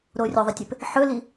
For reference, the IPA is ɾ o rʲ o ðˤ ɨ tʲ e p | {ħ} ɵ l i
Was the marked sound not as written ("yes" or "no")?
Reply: no